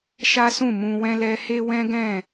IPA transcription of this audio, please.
ʃ a˦ s ũ˦˨ m ũ˧ w ɛ̃˦ l ɛ˦ h e˦ w ɛ̃˦ ɡ ɛ̃˦˨

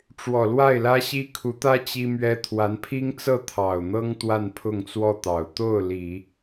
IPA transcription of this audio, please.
ʈ͡ʂ w ɔ˨˩ l w a˥˩ ɪ̯ l ä˥ ɕ i˥ kʰ u˧˥ t̪ ä˥ t͡ɕ i˥ m ɥ ɛ˥ t̪ʰ w a˧˥ n pʰ i˥ ŋ t͡s ɤ˥˩ t̪ʰ ɑ˨˩ ʊ̯ n̪ ɤ˥ ŋ t̪ w a˥˧ n pʰ ʊ˥˧ ŋ t͡s w ɔ˥˩ t̪ ɑ˨˩ ʊ̯ t̪ o˥˩ ʊ̯ l i˨˩˦

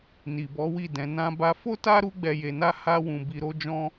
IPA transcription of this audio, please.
n i˨ b ɔ˨˦ w i˦˨ d ɛ̃˨˦ n ã˦ b a˦ f o˦ t a˦ ɾ u˦ ɡ͡b ɛ˧ j e˧ n a˦ h a˦ w ũ˧ b i˧ ɾ o˦ d͡ʒ ɔ̃˦

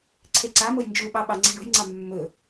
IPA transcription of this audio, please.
ǀʰ e ǀ a m o j n d͡ʒ u ɓ ɑ ɓ ɑ ŋ͡ǀ e̤ ɳ o̤ j ŋ͡ǀ ɑ mː ɵ

